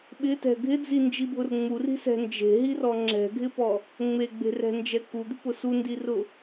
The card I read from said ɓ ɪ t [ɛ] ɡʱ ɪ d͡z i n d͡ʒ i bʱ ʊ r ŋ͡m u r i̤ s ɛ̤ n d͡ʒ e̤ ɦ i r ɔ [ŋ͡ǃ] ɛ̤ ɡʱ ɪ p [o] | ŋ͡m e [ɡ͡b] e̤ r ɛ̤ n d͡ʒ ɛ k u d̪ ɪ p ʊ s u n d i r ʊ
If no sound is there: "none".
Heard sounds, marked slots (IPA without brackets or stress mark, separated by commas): ɛ̤, ŋ͡ǁ, ɔ, ɡ͡b